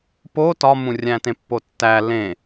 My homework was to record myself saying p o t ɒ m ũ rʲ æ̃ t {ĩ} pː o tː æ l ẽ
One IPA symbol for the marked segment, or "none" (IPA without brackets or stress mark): ẽ